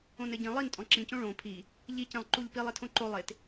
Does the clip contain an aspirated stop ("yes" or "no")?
yes